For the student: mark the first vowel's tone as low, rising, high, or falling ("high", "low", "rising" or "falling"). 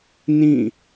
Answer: falling